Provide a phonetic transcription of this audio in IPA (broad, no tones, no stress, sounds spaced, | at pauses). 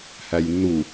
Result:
h æ j nː u